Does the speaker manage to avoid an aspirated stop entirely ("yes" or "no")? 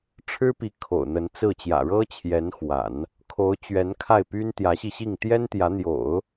no